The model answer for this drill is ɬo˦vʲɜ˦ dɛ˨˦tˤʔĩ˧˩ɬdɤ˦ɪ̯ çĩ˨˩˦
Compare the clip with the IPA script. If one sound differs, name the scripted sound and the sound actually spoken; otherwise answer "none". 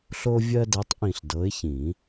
ɤ˦ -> ɤ˨˦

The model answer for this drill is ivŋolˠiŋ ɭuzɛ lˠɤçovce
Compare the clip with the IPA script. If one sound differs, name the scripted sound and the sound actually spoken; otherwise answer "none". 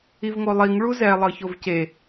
none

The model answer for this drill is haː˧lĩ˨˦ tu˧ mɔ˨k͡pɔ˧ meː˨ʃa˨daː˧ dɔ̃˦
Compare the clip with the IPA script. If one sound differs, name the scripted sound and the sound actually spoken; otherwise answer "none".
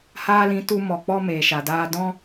none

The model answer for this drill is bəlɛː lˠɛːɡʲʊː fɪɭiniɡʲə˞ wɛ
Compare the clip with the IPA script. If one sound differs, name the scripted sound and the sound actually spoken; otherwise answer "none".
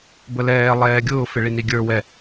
none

